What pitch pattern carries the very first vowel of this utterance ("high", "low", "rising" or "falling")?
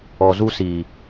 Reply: low